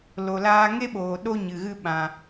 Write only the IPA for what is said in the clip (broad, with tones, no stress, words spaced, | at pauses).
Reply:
lo˨laː˧ŋe˦ɓoː˨ ɗo˦ɲɨ˨ɣɨ˦ ɓã˧